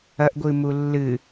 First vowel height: low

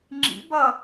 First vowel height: high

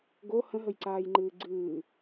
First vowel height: mid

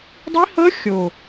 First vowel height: high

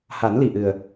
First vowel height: low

